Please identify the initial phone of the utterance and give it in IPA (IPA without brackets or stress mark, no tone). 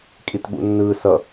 kʼ